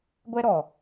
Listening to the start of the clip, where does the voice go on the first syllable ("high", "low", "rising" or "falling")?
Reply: high